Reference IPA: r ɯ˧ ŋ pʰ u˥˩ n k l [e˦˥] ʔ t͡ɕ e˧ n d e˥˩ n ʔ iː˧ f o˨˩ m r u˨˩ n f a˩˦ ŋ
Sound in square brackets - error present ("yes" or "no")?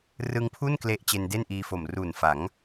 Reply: no